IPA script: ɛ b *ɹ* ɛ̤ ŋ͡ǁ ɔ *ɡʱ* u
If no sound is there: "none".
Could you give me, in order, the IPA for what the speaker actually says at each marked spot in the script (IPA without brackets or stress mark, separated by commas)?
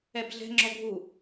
ɮ, ɡʱ